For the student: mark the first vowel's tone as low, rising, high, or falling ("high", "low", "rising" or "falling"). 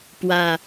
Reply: low